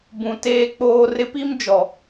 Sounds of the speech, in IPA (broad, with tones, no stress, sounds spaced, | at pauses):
b ũ˨ t eː˦ k͡p oː˦ r ɪ˦ p i˦ m d͡ʒ ɔ˨